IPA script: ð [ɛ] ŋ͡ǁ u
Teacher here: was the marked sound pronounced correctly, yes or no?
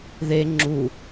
no